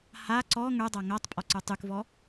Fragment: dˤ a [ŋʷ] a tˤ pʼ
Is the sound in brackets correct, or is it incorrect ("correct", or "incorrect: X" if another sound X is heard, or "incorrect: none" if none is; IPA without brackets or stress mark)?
incorrect: ŋ